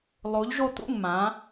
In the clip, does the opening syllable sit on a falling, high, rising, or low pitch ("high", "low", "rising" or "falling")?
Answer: rising